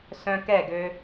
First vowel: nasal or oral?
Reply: nasal